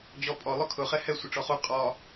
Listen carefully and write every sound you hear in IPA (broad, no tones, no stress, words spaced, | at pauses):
d͡ʑɔpʼɔ lˠʊkʰʊ χɛhɛ sʷəʈ͡ʂɔχu qʼɒ